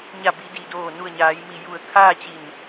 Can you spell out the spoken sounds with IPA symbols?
ɲ a˧˩ b i˩˧ d i˩ d oː˧˩ n u˧˩ ə̯ ɲ aː˩˧ j m i˧˩ j u˧˩ ə̯ kʰ aː˥˨ t͡ɕ i˧˩ n

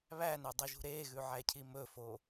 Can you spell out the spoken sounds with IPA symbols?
β æ n ø dˤ i ʒ ṳ ɾ e ɣ ʉ ʕ æ cʰ i m ɵ f o

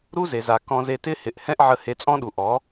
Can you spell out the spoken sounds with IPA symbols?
ɾ u˦ z e˨ z a˨ k ɔ̃˧ z e˧ t ɪ˦ h ɪ˨ ʔ h ɛ̃˦ ʔ ʕ ə˧ h e˧ t͡sʼ ɔ̃˦ ɗ u˨ ʔ ɔ˨˦

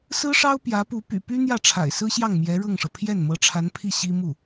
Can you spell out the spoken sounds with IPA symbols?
s ɹ̩˥ ʂ ɑ˥ ʊ̯ p j ä˧˥ p u˧˥ p y̰˨˩ p y˥ n̪ j ä˥˩ ʈ͡ʂʰ a̰˨˩ ɪ̯ s ɹ̩˥ ɕ j ɑ˥˩ ŋ m j ɛ˧˥ ɻ ɤ˥˩ ŋ ʂ ɤ˩ pʰ j ɛ˥˩ n m ɤ˧˥ ʈ͡ʂʰ a˧˥ n pʰ i˥˩ ɕ i˥ m u˥˩

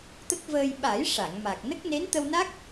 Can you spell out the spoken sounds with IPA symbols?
t̪ ə˦˥ k̚ v əː˧ j ɓ a˨˩˦ j ʂ a˨˩˨ ŋ m a˨˩ k̚ n ə˦˥ k̚ n e˧˥ n t̪ ə˧ w n a˦˥ k̚

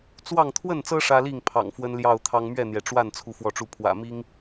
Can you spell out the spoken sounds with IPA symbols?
t͡s w ɑ˥˨ ŋ t̪ʰ w ə˥˨ n t͡s ɤ˦ ʂ ä˦ l i˥˨ ŋ pʰ ɑ̰˨˩ ŋ f w ə˦ n l j ɑ˥˨ ʊ̯ t̪ʰ ɑ˦ ŋ m ɥ ɛ˥˨ n̪ j ɛ˩ ʈ͡ʂ w a˥˨ n t͡sʰ u˦ f w ɔ˥˨ ʈ͡ʂ u˥˨ pʰ w ä̰˨˩ m i˦ ŋ

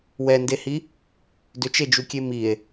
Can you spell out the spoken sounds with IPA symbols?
w ɛ n d e h i | d ʏ t͡ʃ e d͡ʒ u kʲ e m i e̯

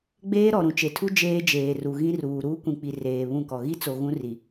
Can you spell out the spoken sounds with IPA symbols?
ɡ͡b eː˦ ɾ ɔ˨ ɾ ũ˨ t͡ʃ e˨ tʰ u˦ d͡ʒ eː˦ d͡ʒ eː˨ r u˨ ɣ ĩ˦ r uː˨ ɾ uː˦ kʷ ĩ˨ k͡p i˨ r eː˨ β ũ˦˨ k ɔ˨ ɣ i˦ t͡s o˨ ɣ ũ˦ r i˨

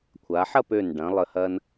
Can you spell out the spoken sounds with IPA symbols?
kʷʰ a˩˧ ħ ɐ˥˧ p ø˧˩ n ɖ ɐ̃˩˧ lˠ ə˧˩ h ɐ˧ n

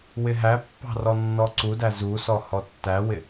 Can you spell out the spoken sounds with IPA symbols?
w ɪ ɦ æ pː ɑ̤ r ɔ nː ɔ ǀ u d æ z u s ɔ h ɔ tː æ w ɪ

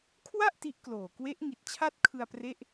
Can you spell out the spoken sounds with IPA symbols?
kʰ w a˥˩ ʔ t i˦˥ ʔ k l oː˨˩ k w e˦˥ ʔ ŋ i˨˩ t̚ t͡ɕʰ a˥˩ t̚ kʰ ɯ˧ a̯ p r e˥˩ ʔ

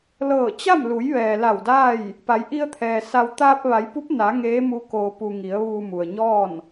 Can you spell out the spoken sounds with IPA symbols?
l ɤː˧˩ t͡ɕ a˥˨ m l u˩˧ j ʋ ɛː˩ l a˧˩ w d aː˥˨ j | p a˩˧ j ʔ i˧ ə̯ t̪ʰ ɛː˩ s a˧ w t̪ aː˧ p̚ ʋ a˩˧ j p u˧˥ p̚ n a˩˧ ŋ eː˧˥ m u˧ k oː˩ p u˩ ŋ i˩˧ ə̯ ʋ uː˧ m u˩ ə̯ ɲ ɔː˥˨ n

